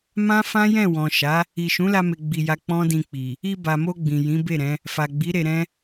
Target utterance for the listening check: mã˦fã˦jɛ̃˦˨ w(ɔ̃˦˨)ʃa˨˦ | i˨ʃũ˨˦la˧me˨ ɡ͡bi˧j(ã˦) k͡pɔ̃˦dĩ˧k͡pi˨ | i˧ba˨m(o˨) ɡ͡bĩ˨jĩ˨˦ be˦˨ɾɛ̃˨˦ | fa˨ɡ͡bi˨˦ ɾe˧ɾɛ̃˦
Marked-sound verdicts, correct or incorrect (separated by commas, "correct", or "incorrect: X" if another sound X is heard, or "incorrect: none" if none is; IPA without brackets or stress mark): incorrect: ɔ̃˨, incorrect: a˦, incorrect: o˧